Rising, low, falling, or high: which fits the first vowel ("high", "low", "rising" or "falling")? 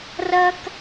high